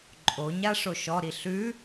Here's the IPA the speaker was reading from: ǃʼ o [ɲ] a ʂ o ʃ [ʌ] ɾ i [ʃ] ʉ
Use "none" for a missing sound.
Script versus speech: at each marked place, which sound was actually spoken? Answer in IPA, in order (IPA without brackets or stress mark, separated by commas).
ɲ, ɔ, ɬ